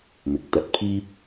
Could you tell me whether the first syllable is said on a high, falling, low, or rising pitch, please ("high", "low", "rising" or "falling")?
rising